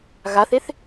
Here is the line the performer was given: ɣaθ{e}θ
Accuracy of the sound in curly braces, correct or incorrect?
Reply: correct